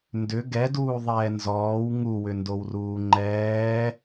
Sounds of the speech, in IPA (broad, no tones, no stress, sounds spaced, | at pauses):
n d ʏ ɡ ɛ d uː ðˤ ɛː n z ɔː w ŋ u w ʏ n d o w r uː ŋ͡ǃ ɛː